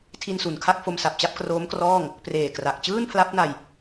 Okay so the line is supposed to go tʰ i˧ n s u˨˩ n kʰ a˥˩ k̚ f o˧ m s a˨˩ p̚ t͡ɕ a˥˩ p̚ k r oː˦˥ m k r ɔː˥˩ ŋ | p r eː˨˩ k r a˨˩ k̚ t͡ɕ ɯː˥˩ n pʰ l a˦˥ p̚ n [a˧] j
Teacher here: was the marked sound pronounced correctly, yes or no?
yes